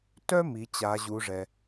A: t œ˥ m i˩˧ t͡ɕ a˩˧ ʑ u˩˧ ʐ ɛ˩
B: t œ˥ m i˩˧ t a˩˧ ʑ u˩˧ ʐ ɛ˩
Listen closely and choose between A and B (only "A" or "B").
A